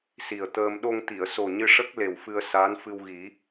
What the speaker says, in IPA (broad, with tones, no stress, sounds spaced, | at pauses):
s i˨˩ ə̯ t̪ əː˧ m ɗ o˧ ŋ t̪ i˨˩˨ ə̯ s o˨˩ ɲ ɨ˧ ʂ ə˦˥ k̚ l e˨˩ w f ɨ˧ ə̯ s aː˧˥ n f ɨ˧ w ɣ i˨˩˦